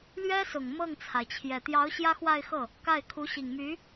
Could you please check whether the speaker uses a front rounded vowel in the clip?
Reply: yes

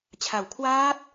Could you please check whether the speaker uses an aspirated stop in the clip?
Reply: yes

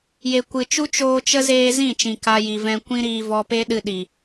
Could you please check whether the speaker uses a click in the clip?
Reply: no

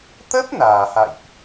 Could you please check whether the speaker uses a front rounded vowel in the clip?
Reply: no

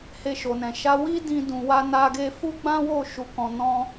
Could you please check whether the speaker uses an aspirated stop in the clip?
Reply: no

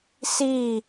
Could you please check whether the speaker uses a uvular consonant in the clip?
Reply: no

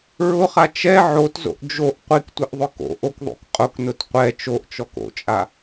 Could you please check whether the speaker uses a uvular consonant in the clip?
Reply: yes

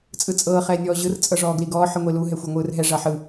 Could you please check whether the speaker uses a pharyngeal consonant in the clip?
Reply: yes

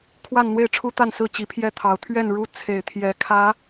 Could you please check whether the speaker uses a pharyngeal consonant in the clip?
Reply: no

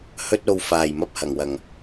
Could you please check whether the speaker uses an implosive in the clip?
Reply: no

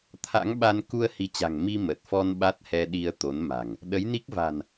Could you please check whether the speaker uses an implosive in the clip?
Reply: yes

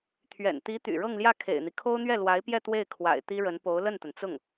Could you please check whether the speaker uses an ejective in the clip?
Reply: no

